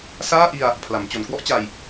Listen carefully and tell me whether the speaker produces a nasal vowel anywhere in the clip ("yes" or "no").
no